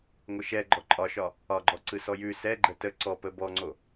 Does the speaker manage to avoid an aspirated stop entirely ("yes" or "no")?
yes